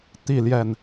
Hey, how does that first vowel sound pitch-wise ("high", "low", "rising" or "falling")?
falling